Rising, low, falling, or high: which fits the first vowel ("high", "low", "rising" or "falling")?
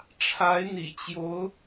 rising